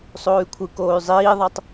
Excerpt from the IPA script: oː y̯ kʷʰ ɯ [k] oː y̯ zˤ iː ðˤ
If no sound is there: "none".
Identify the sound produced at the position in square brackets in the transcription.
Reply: k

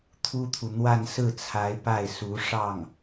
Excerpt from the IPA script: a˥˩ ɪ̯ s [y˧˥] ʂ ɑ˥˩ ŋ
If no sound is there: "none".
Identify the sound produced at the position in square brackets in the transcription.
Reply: u˧˥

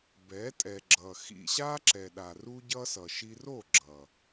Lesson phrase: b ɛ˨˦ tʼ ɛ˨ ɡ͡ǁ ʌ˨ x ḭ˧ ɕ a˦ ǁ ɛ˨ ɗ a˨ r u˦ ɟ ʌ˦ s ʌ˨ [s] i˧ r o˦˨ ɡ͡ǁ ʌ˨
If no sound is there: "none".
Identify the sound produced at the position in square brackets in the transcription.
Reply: ʃ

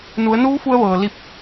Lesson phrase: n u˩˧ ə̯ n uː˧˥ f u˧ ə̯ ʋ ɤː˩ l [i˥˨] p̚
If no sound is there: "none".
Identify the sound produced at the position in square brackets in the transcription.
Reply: i˥˨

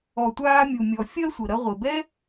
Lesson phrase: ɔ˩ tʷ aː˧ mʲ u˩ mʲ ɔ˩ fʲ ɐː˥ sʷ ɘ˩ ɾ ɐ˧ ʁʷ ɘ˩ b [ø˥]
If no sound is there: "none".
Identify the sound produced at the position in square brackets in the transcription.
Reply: ɛ˥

